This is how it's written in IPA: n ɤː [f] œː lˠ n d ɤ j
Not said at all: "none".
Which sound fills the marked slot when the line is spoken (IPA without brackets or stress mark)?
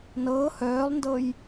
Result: h